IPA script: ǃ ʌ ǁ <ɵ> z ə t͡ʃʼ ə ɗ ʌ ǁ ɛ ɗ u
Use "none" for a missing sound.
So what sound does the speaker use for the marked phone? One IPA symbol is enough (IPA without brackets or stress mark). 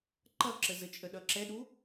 ə